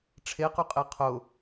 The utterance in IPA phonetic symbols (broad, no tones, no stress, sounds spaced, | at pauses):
ʈ͡ʂʰ e q y qʼ e qʰ ʊ